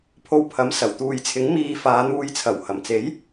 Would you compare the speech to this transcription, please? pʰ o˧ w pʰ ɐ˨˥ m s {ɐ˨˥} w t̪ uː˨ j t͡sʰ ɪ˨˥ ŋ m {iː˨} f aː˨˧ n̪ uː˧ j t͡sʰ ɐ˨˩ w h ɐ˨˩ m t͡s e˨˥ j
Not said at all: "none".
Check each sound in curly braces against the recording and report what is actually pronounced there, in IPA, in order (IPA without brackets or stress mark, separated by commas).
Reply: ɐ˨˩, iː˨